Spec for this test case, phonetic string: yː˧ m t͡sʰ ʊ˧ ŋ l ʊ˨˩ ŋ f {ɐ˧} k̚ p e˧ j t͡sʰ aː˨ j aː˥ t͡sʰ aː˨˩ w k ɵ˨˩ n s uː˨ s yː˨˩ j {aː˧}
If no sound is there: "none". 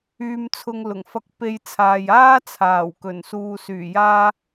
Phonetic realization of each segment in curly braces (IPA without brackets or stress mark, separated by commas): ɐ˧, aː˧